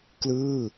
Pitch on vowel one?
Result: falling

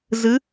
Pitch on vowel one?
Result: rising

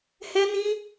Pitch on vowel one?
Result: high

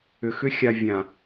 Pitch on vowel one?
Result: low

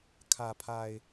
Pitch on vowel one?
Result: low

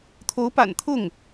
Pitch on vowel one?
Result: rising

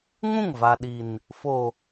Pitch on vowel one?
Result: falling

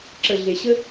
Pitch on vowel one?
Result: low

